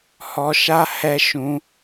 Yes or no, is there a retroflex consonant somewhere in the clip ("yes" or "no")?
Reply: no